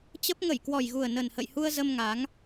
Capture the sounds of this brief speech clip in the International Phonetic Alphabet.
t͡ɕ ə˦˥ p̚ ŋ ə˧˩ j k w ɔ˨˩ j ɣ u˨˩ ə̯ n ə˨˩ n h ə̰˧˨ j h u˧ ə̯ z ə˧ m ŋ a˨˦ ŋ

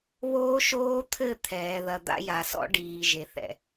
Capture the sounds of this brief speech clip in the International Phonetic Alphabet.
β oː˦ ʃ oː˦ t̪ʰ ɘ˦˨ t̪ʰ ɛː˨ ð ɐ˨ d̪ a̰˦ j a˨ s ɔ̰˦ ɖ iː˨ ʒ e˨ θ ɛ̰˨

